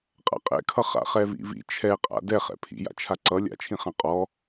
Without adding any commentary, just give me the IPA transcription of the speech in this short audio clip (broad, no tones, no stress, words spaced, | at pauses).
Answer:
qʼa̰qʼɛ̰kʰʌ χa̰χɛvḭvḭ t͡ʃʰɛqʼa̰ dɛχɛ̰ pʰḭja̰t͡ʃʰa ǀʌ lʲa̰t͡ʃʰĩχã qʼɔ